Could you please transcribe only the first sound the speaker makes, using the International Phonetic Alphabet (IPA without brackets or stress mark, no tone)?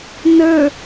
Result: n